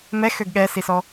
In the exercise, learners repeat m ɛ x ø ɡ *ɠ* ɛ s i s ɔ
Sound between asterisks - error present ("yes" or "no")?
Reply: no